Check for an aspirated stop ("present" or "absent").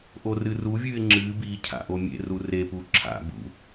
present